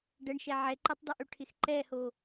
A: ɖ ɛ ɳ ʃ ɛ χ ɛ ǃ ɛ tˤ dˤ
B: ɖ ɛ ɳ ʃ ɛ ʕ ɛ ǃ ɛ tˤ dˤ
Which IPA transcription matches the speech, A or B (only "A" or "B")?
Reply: B